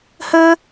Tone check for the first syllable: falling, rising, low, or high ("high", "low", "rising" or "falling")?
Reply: high